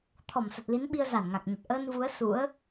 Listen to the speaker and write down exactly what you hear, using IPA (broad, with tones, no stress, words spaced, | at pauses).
t̪ʰɔ˧˩msə˨˩t̚ li˨˦nɓi˧ə̯ za˧˩nŋa˨˩k̚ɲə˨˩t̚ ʔəː˧nvu˨˦ə̯ sṵ˧˥ə̯